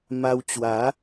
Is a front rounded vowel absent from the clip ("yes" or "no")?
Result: yes